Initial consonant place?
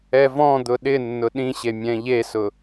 labial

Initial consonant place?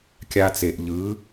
velar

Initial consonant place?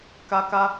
velar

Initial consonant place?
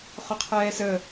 uvular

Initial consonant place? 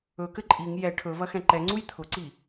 velar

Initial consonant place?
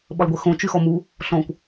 labial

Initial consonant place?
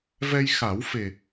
labial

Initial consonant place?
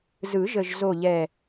alveolar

